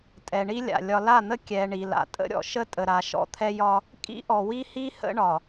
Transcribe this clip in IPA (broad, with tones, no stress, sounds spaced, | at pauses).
tʼ ɛ˨ ɳ i˦ lʲ a̰˨ lʲ ɒ˨ l a˦˨ n̪ ə˦ kʲ ɛ˨ ɳ i˨ l a̰˨ tʼ ə̰˦ ɾʲ ɔ̰˨ ʃ ə˦ tʼ ə˨ ɾ a˨ ʃ ɔ̰˦ t̪ʰ ɛ˦ j ɒ˦ | kʼ ḭ˦ ʔ ɔ˨ w i˦ h i˦ h ə̰˦ ɳ ɒ˨